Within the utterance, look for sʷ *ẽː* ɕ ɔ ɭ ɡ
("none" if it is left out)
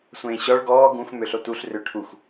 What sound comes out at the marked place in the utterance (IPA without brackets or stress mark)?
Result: ẽː